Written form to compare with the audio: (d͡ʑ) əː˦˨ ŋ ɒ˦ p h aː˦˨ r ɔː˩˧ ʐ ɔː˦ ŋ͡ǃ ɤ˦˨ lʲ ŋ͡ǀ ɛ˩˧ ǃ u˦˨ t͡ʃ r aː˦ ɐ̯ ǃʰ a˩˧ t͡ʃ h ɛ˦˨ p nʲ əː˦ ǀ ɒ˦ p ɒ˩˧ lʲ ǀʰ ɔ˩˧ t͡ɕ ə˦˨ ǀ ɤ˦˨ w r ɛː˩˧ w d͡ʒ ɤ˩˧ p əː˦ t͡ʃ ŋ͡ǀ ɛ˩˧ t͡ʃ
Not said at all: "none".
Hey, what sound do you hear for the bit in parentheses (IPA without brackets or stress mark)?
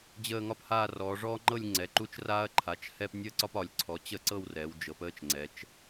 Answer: d͡ʑ